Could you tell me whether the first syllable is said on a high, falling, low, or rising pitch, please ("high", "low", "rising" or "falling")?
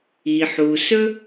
low